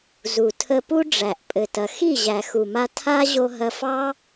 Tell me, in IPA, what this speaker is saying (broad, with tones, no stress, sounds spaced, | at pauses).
z u˨ tʰ ə˧ p u˦ ɖ͡ʐ æ˨ ʔ pʼ ɘ˨ t ɐ˨ x i˦˨ ʑ æ˨ x u˨ m a˧ tʰ a˦ ʑ o˧ ɦ ɐ˧ f ɑ˦